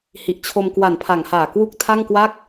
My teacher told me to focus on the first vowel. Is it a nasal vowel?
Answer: no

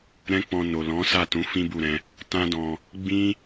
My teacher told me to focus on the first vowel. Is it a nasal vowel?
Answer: yes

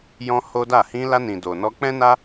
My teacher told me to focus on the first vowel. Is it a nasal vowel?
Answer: yes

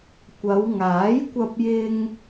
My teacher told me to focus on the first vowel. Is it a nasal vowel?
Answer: no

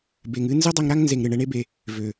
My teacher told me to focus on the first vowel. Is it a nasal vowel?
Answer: no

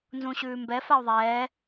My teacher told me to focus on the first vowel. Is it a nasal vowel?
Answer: yes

